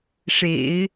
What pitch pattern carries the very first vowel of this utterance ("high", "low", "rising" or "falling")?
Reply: low